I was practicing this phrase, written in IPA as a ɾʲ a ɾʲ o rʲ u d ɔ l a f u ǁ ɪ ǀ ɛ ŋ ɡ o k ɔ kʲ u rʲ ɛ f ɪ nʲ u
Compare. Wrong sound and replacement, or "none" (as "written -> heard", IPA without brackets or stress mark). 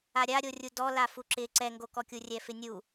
none